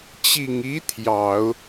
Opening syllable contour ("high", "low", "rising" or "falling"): low